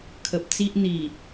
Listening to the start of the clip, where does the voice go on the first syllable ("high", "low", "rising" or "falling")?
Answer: low